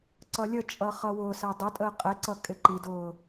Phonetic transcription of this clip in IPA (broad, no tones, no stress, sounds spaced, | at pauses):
ǀ ʌ lʲ ə t͡ʃʼ ʌ χ ʌ w ʊ s æ dˤ ʊ tʼ əː qʼ ɛ ǀ ʌ kʼ ɪ ǃ i d ʊː